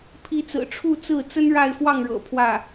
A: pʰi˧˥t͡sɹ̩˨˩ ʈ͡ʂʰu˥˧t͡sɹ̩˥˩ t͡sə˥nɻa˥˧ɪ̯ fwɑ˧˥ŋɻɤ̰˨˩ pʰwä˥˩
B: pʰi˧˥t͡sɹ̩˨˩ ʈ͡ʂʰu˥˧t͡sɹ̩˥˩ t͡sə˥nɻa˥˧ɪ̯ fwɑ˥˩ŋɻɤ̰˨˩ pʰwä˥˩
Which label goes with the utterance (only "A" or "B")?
B